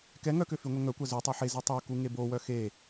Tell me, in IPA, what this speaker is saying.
kɛ ŋœkø fyŋʷɛŋœkʷa zytˤa ħezi tˤœku ŋebowœ xe

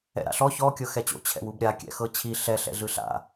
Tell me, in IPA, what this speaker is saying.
ɛ̰ɾa̰ɬɔ çɔ kʲɤxɛt͡ɕo̰ t͡ɕʰɛ̰wubɾʲa kʲɛ̰xɤt͡ɕʰi ɬɛ ɬɛ̰ɮɯɬa̰

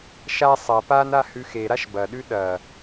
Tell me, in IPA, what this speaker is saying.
ʃa sˤɐ pana hʉxeɾaʃ bɐɗʉ ɗɐ

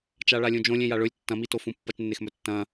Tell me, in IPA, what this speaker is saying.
t͡ʃaɭalʲũd͡ʒõ lʲẽjaɭɵlʲ tːɐ̃mitofũ pːɐt͡ʃnːexmɵ tːɐ̃

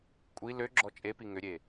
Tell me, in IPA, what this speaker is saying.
kʷʼi lø ɡ͡ǁɔt͡ʃʼepi ŋʏɾʲe

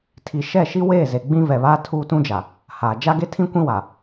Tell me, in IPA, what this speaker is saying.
tʰi˨ ʃɛ˦˨ʃi˦weː˦˨ ze˨ɡ͡bĩ˦vɛ˨βaː˦ tʰuː˦tũ˦d͡ʒa˨ | haː˨ d͡ʒa˦ɡe˦tʰĩ˦ kʷĩ˦wa˨

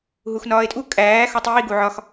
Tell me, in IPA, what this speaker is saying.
ɦuxnɒːe̯tʼu kʼæː xotˤiː ɡuʕɒx

